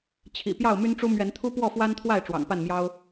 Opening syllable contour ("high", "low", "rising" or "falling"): low